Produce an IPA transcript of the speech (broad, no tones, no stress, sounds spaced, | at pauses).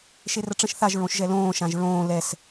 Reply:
ʃ e r ə ʈ͡ʂ ə̃ ʃ θ a ʒ ɹ õ ʃ ʒ ɛ l õː ʃ ã ʒ ɹ õː l ɛ s